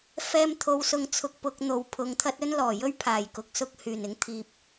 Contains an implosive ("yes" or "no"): no